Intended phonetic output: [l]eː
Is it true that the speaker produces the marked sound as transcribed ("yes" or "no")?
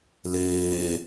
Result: yes